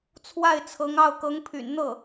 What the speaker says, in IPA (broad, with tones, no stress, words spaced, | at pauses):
t͡sʰwa˥˩ɪ̯t͡sʰɤ˧˥ŋɑ˥˩ʊ̯ kɤ˧˥ŋpʰy̰˨˩nn̪ɤ˥˩